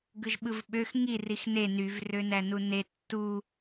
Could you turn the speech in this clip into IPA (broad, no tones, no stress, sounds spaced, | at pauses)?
ɡ ɯ ʒ ɓ ɯ v ɓ ø x ŋ i r i x n e n y v r ø n æ n u n e tː u